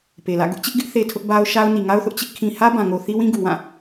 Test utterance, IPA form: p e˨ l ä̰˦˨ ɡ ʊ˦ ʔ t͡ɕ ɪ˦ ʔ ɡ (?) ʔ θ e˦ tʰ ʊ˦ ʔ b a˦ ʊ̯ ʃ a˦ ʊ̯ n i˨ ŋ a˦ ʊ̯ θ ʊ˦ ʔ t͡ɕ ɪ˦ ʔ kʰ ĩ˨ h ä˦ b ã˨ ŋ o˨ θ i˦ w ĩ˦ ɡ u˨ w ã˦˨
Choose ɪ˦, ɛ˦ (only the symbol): ɪ˦